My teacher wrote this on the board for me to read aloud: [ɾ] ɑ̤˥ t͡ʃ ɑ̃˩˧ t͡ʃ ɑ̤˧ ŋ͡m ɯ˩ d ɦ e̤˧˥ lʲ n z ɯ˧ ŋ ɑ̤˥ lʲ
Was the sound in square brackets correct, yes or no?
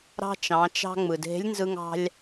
yes